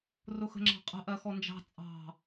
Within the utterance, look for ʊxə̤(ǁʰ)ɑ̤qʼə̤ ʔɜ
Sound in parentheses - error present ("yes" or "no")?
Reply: yes